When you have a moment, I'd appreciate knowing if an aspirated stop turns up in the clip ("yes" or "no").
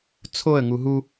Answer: yes